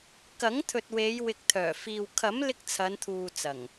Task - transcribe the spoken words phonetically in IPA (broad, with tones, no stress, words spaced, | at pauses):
kɐ˨˥ŋt̪ʰɵ˨t̚ we˨˧jwɪ˨k̚ t̪ʰœː˨˩fiː˨w kʰɐ˨˥mlɪ˧k̚ t͡sʰɐ˨˧nt̪ʰuː˨t͡sɐ˨˩ŋ